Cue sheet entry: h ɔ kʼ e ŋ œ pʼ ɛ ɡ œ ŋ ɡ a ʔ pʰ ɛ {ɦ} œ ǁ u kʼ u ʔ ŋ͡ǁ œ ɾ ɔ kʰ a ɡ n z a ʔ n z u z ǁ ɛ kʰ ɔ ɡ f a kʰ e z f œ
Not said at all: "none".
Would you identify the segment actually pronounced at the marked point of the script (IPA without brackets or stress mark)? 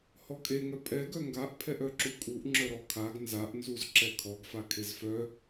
ʔ